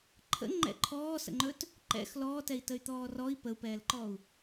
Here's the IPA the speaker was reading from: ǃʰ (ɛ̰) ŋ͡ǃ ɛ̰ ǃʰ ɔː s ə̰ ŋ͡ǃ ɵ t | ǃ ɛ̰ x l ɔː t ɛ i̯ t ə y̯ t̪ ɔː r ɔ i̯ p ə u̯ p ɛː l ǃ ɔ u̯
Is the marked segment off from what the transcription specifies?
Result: yes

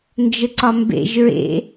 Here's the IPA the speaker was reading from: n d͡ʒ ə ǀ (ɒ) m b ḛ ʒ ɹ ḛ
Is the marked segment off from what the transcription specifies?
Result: no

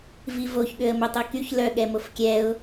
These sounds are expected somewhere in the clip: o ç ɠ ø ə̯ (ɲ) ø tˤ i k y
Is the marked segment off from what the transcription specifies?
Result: yes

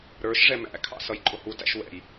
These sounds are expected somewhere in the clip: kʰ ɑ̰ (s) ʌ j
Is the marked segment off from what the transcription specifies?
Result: no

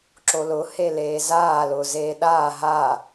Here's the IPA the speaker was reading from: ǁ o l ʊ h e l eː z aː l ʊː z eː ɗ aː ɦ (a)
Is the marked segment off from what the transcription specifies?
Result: no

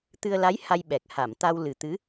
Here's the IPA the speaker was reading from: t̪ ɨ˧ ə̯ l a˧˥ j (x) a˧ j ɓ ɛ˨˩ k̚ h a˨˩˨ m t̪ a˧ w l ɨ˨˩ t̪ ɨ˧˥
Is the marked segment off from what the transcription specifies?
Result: yes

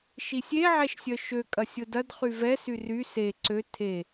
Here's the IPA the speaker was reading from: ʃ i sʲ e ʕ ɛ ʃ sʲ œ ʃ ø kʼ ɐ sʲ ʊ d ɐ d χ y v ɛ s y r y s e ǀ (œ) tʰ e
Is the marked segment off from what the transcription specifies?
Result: yes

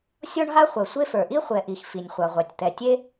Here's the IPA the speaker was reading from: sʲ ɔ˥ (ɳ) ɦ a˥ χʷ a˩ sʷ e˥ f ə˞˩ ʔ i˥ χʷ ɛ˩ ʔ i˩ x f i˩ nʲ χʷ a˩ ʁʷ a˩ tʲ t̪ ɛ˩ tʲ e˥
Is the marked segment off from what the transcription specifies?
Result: no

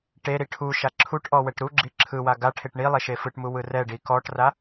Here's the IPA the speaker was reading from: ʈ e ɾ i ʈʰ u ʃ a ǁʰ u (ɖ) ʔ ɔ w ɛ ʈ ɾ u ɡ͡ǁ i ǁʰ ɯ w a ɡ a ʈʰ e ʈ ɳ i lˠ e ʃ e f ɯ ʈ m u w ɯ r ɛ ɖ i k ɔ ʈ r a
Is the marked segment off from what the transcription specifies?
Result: yes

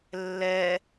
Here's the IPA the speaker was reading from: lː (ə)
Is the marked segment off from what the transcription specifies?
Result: yes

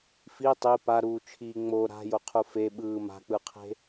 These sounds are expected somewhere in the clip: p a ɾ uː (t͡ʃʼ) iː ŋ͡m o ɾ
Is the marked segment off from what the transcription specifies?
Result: yes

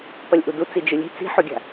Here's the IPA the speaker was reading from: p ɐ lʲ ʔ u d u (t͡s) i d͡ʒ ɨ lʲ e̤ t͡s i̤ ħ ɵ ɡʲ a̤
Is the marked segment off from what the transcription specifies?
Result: no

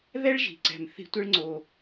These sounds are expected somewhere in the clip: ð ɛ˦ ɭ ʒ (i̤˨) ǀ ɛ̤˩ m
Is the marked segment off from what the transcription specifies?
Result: yes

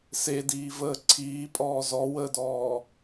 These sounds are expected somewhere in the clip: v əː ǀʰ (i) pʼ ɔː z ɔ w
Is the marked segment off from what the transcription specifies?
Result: yes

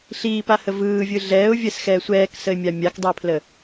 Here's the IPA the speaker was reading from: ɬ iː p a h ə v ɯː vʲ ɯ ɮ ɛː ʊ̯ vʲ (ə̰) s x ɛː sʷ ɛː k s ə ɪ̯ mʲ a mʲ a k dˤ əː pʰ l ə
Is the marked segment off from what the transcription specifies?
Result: yes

